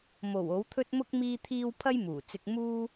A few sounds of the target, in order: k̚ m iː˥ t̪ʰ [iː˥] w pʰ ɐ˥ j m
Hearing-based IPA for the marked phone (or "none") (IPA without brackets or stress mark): iː˥